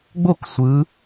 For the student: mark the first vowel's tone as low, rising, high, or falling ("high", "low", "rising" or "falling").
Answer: falling